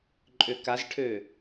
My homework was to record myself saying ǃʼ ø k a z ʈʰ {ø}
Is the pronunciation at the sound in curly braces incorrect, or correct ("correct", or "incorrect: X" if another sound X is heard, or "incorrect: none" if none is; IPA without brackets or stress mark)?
correct